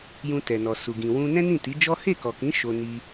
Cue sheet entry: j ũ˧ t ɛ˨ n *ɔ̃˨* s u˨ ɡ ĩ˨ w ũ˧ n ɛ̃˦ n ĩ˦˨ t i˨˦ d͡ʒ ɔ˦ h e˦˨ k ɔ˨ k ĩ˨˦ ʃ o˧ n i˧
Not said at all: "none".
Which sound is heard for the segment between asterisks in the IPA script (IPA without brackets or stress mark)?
ɔ˨